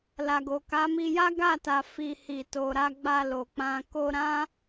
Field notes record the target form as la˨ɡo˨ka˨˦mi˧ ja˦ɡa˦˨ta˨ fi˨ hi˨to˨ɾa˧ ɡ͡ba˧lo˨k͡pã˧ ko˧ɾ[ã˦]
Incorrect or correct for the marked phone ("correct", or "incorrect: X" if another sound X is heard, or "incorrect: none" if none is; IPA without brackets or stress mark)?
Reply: correct